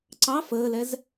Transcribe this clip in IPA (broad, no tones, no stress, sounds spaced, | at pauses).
ǀ ɑ f əː l ɛ z